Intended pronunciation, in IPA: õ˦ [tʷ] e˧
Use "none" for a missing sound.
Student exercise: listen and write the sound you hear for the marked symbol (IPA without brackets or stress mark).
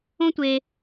tʷ